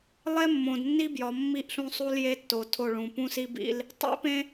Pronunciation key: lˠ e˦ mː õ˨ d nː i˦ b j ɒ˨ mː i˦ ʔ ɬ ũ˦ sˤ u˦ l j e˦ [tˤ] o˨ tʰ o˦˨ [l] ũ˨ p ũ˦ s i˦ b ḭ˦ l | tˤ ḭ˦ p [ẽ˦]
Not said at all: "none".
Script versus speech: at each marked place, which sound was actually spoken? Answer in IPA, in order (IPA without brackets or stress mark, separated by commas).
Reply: tː, ɭ, ẽ˦